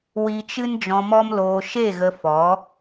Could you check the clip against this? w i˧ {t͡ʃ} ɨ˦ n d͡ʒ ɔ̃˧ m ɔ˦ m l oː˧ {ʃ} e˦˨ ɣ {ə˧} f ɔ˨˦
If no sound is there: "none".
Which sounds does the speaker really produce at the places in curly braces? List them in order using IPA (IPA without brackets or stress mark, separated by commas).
t͡ʃ, ʃ, ə˧